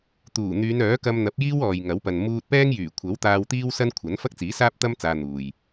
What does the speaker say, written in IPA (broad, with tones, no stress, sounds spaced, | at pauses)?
t̪ uː˨˩ n̪ yː˨˧ n œː˨˥ k ɐ˧ m n̪ ɐ˨˥ p̚ j iː˥ w ɔː˨ j ŋ ɐ˨˥ w p ɐ˨ n m uː˧ t̚ p ɛː˥ ŋ j yː˨˩ kʷʰ ɐ˨˥ w t̪ aː˧ w t̪ iː˥ w s ɐ˥ n kʷʰ ɐ˨˥ n f ɐ˥ k̚ t͡s iː˨˥ s aː˥ p̚ t̪ ɐ˥ m t͡s aː˧ n̪ uː˨ j